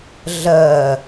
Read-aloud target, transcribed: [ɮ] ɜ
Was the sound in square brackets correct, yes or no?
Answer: yes